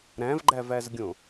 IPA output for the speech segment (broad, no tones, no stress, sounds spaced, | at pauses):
ɾ æ̃ v ɡ͡ǃ æ v æ z ɡʲ õ